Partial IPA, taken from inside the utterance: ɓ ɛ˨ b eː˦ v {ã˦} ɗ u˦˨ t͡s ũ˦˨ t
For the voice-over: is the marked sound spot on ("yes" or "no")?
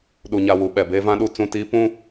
yes